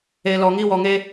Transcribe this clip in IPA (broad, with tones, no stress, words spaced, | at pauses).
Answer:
e˨ lɔ˨ŋi˦wɔ˨ŋe˦